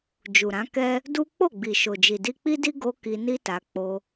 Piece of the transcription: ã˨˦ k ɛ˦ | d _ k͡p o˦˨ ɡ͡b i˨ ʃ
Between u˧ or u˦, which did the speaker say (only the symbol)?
u˦